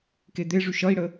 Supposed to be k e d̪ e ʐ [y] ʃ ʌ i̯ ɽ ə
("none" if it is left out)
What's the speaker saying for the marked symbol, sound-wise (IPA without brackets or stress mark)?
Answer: y